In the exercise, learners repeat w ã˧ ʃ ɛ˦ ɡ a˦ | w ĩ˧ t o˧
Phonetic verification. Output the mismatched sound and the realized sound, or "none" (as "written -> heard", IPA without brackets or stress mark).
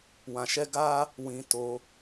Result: none